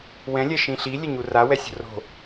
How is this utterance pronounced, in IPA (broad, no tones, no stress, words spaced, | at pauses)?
wɛ̃lʲɛʃĩ ɬilʲɛɲu rawɛsʲo̤ ro̤